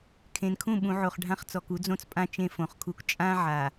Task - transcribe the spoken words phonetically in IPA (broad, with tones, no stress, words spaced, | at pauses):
kʰẽ˨nkʰũ˦˨ ɓũ˨ʕo˨χ ɖʱã˦χt͡sɔ˨ku˦ d͡zõ˦t͡spʼã˦ t͡ʃẽ˦fõ˨χkʰu˦k t͡ʃʼã˦ ʕa˨